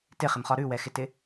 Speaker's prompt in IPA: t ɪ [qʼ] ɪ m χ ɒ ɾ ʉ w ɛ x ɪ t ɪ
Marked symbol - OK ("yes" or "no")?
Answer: no